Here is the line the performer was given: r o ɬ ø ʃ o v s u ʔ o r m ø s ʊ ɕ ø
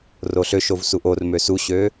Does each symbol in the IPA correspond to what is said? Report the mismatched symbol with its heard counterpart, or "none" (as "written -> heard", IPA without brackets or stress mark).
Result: ʊ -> u